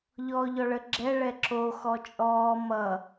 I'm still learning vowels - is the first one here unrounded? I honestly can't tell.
no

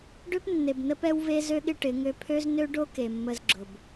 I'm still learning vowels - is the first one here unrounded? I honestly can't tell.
no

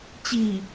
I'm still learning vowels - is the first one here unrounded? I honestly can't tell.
yes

